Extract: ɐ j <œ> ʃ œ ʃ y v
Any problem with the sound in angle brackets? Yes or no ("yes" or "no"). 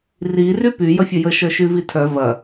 yes